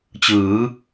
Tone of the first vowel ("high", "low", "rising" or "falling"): rising